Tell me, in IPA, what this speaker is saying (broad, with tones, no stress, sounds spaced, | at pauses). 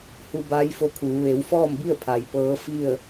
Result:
h u˧ b aː˧˥ j f o˧ kʰ uː˩˧ ʋ e˩˧ w f ɔː˥˨ m b i˥˨ ə̯ pʰ a˩ j p ɤː˧˥ f i˥˨ ə̯